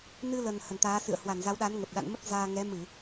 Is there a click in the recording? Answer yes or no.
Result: no